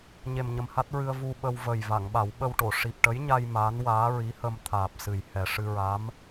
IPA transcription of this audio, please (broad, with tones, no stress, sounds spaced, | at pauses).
ɲ e˨˩ m ɲ ə˨˩ m h a˦˥ t̚ ɹ ɨ˧ ə̯ v u˧ ɓ ə˧ w v ə˨˩ j v a˨˩˨ ŋ ɓ a˨˩˦ w ɓ ə˧ w ʈ o˨˩˨ ʂ i˨˩ p̚ ʈ ə˧˥ j ɲ a˧ j m aː˧˥ n w aː˧˥ ɹ i˧˥ h ə˧ m t̪ʰ aː˨˩ p̚ s ɨ˨˩ j h ɛ˨˩ ʂ ɨ˧ ɹ a˧˥ m